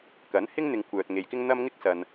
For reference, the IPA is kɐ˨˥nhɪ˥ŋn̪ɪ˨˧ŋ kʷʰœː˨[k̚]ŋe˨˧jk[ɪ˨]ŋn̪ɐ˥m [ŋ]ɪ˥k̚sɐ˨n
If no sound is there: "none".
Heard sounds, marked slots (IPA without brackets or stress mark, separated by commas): t̚, ɪ˥, ŋ